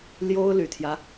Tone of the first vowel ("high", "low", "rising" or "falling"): high